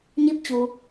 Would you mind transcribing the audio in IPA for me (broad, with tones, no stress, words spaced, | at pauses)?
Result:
ɲi˧p̚t͡ɕu˩